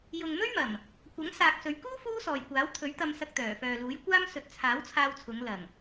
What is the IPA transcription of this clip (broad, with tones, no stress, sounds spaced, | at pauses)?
j ʊ˨ ŋ m ɵ˥ ɥ m ɐ˨˩ m | kʷ ɐ˨˥ ŋ s aː˨ k̚ s ɵ˨˧ ɥ k uː˥ f uː˥ s ɔː˨ j kʷ aː˨˥ w t̪ʰ ɵ˨˥ ɥ t̪ ɐ˧ m s ɐ˧ k̚ t̪ œː˨˩ f œː˨ l uː˨˥ j kʷ aː˥ m s ɵ˨˥ t̚ t͡sʰ aː˨˥ w t͡sʰ aː˧ w t͡sʰ ʊ˨˧ ŋ l ɐ˨˩ ŋ